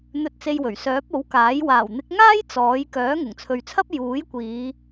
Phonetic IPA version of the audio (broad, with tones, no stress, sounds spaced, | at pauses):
n̪ ɵ˧ t̚ t͡s e˧ j w ɵ˨˩ ɥ s œː˨˥ p̚ o˨˥ w k aː˨˥ j w aː˨˩ w n̪ ɪ˨˥ k̚ ŋ aː˥ j t͡s ɔː˨˥ j k œː˨˥ ŋ ʊ˨˩ ŋ t͡sʰ ɵ˨ ɥ t͡sʰ ɐ˥ p̚ j uː˨˥ j kʷ iː˨˧